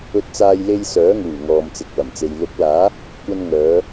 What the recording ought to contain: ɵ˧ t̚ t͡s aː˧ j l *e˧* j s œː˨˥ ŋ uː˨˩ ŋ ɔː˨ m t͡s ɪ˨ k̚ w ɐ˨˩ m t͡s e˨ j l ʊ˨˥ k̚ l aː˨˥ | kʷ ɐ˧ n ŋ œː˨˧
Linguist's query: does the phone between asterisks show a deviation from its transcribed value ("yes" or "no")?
no